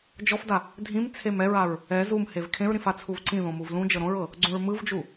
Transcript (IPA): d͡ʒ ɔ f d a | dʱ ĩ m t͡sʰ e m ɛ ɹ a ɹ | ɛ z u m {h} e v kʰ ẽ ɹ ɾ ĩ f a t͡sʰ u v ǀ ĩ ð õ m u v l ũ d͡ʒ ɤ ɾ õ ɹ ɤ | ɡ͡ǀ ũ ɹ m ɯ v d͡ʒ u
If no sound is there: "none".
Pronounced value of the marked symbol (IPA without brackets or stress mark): h